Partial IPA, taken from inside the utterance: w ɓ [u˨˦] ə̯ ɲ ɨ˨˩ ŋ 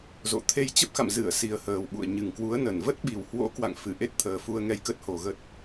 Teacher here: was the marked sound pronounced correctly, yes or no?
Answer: no